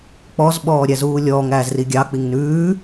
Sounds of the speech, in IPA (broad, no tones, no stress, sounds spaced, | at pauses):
k͡p ɔ z ɓ ɔː ɾʲ æ z uː lʲ ɔː ŋ æː z r i ɡʲ ɑ k͡p i ŋ n ʉː